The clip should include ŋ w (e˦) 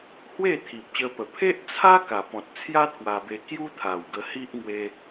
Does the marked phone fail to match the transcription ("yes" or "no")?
yes